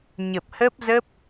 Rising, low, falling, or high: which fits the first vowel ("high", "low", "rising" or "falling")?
low